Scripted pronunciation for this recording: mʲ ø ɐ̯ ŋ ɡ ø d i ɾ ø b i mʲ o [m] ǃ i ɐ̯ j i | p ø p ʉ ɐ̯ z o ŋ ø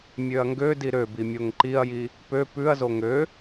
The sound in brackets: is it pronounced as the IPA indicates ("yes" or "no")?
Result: no